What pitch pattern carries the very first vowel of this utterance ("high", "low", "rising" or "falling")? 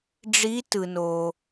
rising